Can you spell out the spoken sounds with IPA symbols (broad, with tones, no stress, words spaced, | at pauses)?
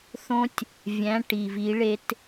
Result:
θõ˦tʲ | vʲæ̃˨˥ ʈi˨˩vi˨˥ɭe˨˥t